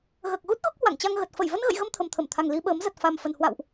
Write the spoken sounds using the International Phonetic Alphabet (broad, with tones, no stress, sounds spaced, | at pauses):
ɣ əː˨˩ k̚ ɣ u˦˥ t̚ ɣ o˦˥ k̚ h w a̰˧˨ ŋ t͡ɕ a˧ ŋ ɣ ə˨˩ t̚ f ə˧˩ j v ə˧ n ɣ ə̰˧˨ j ɣ ə˧ m t̪ʰ ə˨˩ m t̪ʰ ə˧˩ m t̪ʰ a˨˩ ŋ l i˧ ɓ əː˨˦ m z ə˨˩ t̚ f a˨˩ m f ə˨˩ n h w a̰˧˨ w ʔ